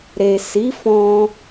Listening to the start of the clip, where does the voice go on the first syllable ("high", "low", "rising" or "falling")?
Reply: low